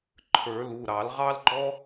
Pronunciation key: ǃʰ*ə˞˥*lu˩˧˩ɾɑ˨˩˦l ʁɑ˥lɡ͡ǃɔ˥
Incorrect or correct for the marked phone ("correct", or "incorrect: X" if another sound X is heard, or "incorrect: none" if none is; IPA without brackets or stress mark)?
incorrect: ə˞˨˩˦